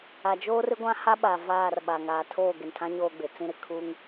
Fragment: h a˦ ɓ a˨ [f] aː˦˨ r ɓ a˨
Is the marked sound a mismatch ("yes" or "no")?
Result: yes